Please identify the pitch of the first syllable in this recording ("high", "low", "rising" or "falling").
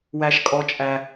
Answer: high